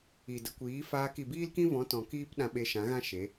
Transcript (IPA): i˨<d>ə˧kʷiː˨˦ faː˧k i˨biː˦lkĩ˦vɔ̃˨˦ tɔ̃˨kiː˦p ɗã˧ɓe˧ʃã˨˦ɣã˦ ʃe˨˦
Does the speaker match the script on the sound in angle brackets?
yes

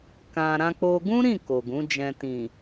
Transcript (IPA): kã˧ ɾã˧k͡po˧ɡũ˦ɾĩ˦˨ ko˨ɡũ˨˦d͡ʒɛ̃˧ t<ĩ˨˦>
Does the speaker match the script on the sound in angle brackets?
no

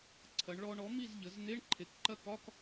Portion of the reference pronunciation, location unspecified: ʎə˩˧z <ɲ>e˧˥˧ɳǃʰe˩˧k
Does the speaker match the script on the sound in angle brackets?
no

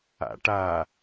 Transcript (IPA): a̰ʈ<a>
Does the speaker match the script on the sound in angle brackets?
yes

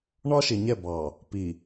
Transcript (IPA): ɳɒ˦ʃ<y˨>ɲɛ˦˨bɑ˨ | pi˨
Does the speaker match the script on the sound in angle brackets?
no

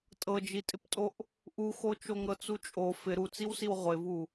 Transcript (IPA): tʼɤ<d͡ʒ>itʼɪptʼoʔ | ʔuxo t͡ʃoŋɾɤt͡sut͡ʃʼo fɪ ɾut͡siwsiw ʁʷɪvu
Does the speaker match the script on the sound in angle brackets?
yes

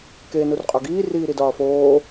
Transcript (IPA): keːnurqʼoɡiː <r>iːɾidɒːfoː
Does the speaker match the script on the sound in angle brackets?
yes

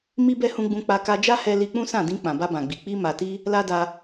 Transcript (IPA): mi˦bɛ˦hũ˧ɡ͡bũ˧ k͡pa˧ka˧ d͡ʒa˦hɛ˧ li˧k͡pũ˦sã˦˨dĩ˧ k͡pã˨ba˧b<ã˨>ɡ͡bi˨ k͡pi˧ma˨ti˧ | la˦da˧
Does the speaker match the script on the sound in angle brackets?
yes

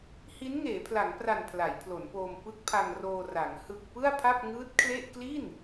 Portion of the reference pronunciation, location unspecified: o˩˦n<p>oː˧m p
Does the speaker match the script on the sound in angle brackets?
yes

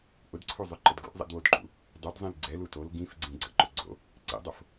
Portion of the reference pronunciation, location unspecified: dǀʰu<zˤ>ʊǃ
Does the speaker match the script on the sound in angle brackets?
yes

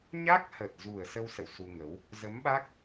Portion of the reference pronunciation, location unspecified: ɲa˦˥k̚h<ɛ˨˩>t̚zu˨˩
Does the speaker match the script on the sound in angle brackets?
no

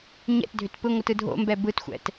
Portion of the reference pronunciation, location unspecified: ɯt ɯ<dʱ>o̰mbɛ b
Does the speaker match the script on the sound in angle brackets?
yes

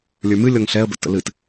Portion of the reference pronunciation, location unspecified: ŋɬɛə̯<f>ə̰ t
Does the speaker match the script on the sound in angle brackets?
no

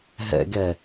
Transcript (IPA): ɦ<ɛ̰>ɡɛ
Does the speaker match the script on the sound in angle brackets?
yes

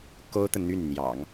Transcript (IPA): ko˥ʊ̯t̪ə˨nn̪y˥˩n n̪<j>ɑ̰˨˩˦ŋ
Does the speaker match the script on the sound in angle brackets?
yes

